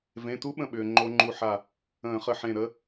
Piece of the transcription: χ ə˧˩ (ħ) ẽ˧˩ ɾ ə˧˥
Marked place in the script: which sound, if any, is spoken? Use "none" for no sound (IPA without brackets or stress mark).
ħ